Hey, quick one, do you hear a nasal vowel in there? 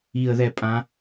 yes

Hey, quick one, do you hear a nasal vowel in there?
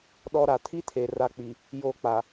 no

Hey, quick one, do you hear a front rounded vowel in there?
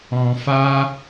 no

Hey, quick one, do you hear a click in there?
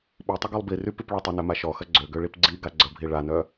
yes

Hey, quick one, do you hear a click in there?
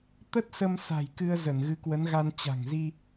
no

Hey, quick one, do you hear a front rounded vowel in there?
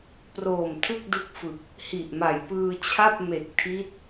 no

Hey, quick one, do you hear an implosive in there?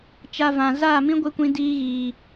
no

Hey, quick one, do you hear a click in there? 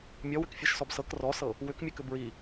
no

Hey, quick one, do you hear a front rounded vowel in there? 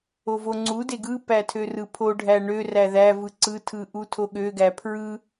yes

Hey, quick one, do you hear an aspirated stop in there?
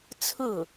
yes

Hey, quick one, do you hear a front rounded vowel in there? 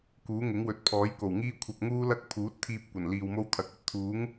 no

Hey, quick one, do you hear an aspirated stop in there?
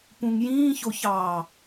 no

